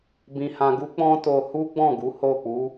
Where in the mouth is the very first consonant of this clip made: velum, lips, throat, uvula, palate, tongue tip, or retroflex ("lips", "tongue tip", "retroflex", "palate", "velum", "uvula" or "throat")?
lips